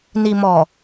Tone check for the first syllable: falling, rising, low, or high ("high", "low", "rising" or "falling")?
low